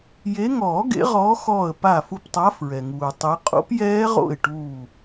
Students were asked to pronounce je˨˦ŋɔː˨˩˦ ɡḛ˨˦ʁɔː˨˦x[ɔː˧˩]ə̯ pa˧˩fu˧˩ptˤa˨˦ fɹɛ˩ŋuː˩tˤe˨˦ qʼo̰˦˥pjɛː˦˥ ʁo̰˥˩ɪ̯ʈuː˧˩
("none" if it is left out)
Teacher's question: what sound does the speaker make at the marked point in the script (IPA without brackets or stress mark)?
ɔː˧˩